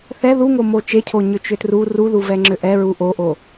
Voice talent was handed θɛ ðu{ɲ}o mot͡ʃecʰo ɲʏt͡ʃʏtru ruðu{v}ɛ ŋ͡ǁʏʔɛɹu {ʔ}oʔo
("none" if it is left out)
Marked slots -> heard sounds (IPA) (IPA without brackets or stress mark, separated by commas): ŋ, v, ʔ